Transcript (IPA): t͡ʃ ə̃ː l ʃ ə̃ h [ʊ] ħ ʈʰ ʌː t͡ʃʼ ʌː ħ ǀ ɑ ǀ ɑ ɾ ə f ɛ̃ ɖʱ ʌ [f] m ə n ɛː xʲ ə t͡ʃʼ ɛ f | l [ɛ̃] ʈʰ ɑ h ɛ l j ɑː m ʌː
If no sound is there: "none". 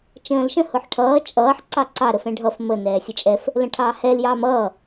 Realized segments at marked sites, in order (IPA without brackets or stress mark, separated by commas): ʊ, f, ə̃